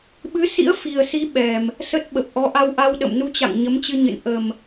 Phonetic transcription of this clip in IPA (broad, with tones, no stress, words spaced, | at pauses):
ɓɨ˨˦sḭ˧˥ə̯ fi˨˩ə̯si˨˦ ɓɛ˨˩m | sə˦˥t̚ ɓə˨˩p̚ʔɔ˨˦ ʔa˧wʔa˧w ɗə̰˧˨mnu˧t͡ɕa̰˧˨ŋ ɲə˨˦mt͡ɕɨ˧ɲɨ̰˧˨n ʔə˨˩m